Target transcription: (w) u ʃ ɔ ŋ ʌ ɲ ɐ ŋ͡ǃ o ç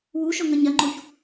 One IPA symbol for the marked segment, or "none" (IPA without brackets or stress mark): w